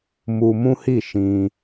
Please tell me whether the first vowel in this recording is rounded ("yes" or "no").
yes